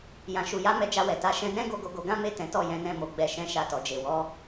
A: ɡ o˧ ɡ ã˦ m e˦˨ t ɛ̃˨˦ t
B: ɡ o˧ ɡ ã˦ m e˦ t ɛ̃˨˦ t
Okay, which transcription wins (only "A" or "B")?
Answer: A